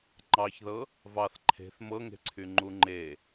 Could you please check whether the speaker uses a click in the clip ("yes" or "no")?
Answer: yes